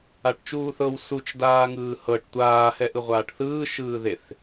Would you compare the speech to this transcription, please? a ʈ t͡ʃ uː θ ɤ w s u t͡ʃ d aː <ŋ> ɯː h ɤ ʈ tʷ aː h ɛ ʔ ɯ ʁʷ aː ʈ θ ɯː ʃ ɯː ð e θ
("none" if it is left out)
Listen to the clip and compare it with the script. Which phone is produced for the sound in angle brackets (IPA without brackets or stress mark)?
ŋ